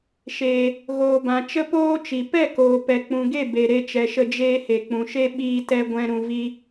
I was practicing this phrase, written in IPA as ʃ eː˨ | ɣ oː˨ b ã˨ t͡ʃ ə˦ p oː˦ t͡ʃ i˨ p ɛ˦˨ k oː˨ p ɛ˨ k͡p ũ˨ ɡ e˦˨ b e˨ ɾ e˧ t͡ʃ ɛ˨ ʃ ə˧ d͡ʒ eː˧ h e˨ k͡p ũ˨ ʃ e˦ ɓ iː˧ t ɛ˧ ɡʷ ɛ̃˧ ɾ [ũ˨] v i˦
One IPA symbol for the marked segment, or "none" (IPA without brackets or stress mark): ũ˧